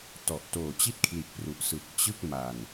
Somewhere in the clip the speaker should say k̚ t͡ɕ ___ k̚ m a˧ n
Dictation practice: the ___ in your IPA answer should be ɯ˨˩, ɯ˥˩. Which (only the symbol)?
ɯ˥˩